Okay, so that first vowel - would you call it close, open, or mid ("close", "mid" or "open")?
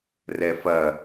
mid